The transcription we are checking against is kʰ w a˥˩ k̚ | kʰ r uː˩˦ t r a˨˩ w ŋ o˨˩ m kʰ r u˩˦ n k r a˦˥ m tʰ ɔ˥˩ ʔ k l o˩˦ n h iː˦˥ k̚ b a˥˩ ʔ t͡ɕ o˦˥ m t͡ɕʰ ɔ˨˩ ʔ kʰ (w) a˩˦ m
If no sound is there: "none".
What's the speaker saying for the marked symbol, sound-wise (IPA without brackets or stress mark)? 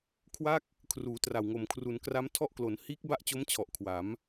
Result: w